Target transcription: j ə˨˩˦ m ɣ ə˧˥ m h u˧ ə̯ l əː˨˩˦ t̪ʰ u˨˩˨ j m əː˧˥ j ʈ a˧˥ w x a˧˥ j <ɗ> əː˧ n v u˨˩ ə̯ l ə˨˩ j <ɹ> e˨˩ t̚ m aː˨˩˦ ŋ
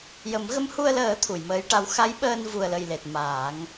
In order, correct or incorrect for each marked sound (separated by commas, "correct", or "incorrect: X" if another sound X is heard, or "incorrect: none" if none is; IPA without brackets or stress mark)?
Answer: incorrect: ɓ, incorrect: l